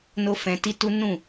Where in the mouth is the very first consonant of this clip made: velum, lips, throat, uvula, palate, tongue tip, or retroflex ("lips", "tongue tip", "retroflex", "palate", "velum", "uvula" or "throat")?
tongue tip